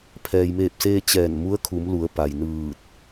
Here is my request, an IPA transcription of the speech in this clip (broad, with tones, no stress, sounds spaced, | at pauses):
pʰ ɛː˩ j m eː˧˩ p̚ s eː˧ t͡ɕ ɛː˧˩ n m u˧˥ ə̯ kʰ u˩˧ m l u˩˧ ə̯ p a˩ j n ɯː˧˩ t̚